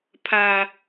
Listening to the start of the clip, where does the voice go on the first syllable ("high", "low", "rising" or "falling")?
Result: low